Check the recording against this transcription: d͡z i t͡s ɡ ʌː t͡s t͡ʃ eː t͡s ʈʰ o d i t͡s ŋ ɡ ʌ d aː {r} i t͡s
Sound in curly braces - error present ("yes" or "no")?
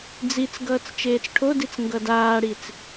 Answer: yes